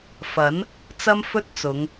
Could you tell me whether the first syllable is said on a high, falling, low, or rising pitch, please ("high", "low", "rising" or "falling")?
rising